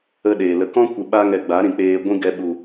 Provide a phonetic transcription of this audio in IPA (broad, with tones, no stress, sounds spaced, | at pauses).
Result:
ə˦ ɗ eː˨ l ə˧ k ɔ̃˦ kʷ ɨ˨ ɓ a˦ ŋ ɛ˧ ɡ͡b a˨˦ ɾ ĩ˨ k͡p eː˧ ɡʷ ĩ˦ ɡ ɛ˧ ɓ u˨